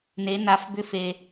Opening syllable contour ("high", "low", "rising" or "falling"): rising